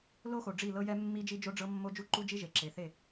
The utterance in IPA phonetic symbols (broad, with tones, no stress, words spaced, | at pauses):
lo˦xo˨ ɖ͡ʐi˦˨lɤ˦jɛ˦mːi˦ d͡ʒi˦d͡ʒo˦ɖ͡ʐɤ˦ mːo˦d͡ʒu˦ǃu˦d͡ʒi˦ ʒe˨ǁe˨θe˦˨